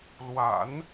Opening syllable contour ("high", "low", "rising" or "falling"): low